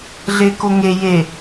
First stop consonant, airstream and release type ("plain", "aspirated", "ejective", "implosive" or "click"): plain